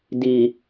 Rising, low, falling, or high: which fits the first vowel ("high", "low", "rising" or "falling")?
low